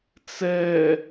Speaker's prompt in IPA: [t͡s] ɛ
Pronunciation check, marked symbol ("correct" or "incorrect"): correct